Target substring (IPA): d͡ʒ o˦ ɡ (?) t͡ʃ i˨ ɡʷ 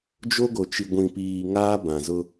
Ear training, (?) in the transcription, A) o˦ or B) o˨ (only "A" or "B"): B